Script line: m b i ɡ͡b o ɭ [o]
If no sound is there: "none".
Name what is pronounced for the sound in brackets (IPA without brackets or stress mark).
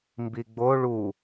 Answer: u